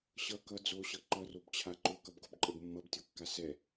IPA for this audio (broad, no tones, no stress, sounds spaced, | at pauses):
ɕ ʌ k ʌ d͡z o ɕ ʌ ǃ ʌ r o b t͡ɕʰ a ǃ o k ʌ b ɡ o b ǃʼ ə b mː ʌ b tʲ o kː a s ɛ